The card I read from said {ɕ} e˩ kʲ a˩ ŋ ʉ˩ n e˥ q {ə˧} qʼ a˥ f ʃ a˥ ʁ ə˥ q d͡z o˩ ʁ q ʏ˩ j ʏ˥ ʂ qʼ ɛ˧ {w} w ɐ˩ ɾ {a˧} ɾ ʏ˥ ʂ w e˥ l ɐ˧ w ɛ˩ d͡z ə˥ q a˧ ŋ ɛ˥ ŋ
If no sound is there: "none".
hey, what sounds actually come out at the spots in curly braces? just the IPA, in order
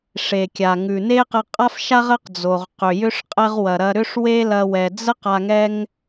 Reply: ʂ, ə˧, ʁ, ɐ˧

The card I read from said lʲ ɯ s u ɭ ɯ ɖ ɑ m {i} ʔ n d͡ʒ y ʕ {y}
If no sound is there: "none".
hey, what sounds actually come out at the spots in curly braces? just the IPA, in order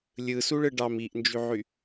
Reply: i, y

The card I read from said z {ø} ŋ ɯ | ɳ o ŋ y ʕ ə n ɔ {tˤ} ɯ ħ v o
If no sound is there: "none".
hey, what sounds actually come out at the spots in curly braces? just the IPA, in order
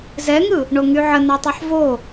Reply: ɛ, tˤ

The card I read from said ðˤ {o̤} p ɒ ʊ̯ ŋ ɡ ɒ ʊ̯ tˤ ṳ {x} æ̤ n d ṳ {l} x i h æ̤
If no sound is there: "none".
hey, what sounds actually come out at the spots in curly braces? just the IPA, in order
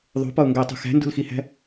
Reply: o̤, x, l

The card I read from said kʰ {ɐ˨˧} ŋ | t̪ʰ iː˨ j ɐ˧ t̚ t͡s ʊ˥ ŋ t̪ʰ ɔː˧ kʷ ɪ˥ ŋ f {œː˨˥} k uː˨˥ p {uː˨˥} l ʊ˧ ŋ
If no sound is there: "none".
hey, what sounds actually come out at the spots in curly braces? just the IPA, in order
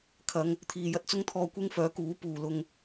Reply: ɐ˨˧, œː˨˥, uː˨

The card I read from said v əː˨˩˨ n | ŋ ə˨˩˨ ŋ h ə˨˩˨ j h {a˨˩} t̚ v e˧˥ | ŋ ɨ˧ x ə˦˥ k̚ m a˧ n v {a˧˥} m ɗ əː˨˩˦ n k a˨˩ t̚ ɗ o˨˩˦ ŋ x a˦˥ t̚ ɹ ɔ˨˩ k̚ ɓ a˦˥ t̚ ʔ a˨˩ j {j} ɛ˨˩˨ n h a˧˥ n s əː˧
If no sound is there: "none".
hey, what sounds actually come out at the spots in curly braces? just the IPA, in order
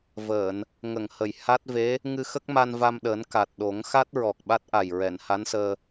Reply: a˦˥, a˧, ɹ

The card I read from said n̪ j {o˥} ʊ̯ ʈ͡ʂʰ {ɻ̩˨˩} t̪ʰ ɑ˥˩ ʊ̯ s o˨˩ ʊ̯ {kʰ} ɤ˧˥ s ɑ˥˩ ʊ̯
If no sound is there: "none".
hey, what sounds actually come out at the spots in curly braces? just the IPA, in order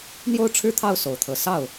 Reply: o˥˧, ɻ̩˥˧, t̪ʰ

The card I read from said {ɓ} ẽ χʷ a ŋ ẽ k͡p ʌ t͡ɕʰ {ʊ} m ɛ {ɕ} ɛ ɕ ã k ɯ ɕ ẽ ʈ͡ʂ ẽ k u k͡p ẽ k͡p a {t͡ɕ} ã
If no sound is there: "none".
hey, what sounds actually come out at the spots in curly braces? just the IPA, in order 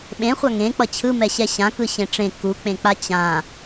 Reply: ɓ, ɯ, ɕ, t͡ɕ

